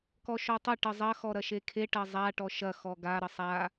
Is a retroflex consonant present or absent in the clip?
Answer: present